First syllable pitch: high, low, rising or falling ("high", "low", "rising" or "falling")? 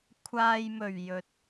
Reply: low